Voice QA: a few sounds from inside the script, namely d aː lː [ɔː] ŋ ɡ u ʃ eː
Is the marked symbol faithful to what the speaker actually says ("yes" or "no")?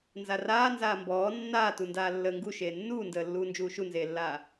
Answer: no